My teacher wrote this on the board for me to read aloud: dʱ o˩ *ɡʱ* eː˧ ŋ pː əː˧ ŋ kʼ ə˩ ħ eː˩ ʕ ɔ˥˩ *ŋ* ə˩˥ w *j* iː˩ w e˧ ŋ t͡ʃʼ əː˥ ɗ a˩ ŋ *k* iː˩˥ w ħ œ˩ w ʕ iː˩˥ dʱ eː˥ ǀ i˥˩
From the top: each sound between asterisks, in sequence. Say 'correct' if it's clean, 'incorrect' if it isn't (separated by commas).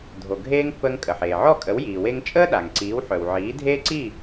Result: correct, incorrect, correct, incorrect